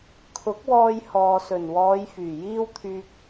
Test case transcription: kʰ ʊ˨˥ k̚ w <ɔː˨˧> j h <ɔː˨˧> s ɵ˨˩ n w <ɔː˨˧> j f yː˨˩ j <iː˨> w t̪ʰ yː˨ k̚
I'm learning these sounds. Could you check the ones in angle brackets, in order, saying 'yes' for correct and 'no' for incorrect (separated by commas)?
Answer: no, no, yes, no